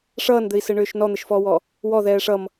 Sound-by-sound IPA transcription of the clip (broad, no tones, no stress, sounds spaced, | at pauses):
ʂ ʌː n d̪ ɘ i̯ s ɘ ɳ ʏː ʃ n ɔ n̪ ɘ ʃ f ɔː w ɔ | w ɔ ð ɛː ʂ ʌ m